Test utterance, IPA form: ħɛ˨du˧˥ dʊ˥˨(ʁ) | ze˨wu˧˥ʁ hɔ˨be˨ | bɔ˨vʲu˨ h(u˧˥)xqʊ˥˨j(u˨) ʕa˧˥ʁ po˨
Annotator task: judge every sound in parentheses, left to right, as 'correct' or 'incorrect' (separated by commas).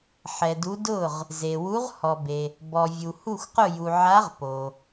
correct, incorrect, correct